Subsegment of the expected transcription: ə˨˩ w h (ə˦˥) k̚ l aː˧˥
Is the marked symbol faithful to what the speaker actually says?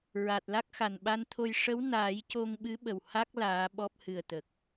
no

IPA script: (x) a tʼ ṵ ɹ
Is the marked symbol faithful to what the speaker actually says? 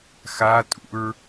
yes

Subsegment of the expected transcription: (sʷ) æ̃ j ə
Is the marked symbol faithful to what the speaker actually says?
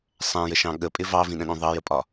no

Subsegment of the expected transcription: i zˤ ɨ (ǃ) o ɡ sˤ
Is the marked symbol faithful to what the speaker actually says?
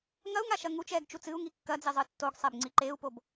no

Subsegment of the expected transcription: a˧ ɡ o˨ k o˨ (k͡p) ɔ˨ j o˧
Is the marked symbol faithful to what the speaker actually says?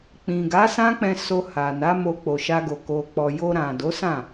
yes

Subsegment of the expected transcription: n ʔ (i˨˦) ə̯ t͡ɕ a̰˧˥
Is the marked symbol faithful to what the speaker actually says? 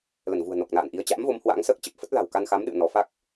yes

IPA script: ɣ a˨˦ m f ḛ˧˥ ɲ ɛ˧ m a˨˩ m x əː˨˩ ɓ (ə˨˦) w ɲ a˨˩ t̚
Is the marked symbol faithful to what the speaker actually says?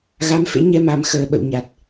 no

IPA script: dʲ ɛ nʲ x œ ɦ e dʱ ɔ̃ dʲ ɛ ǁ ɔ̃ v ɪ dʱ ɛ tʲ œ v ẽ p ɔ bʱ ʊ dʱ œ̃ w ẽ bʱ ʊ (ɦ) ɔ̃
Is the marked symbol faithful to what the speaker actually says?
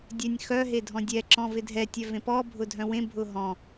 yes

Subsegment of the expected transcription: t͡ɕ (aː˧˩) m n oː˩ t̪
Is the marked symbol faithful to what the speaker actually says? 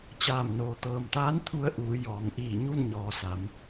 yes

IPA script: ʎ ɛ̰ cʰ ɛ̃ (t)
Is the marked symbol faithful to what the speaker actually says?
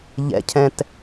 yes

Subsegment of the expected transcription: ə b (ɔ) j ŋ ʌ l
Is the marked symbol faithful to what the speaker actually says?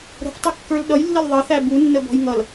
no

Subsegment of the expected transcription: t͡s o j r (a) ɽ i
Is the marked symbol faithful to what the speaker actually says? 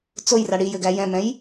yes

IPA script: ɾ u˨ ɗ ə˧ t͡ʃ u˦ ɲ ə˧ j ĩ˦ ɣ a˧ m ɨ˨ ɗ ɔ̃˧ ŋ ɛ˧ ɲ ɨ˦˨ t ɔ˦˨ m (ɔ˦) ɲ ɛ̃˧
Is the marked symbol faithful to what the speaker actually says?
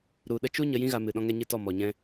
no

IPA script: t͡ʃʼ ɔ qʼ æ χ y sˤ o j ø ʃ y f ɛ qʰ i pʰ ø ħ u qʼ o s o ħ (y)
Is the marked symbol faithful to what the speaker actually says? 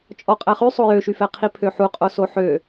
no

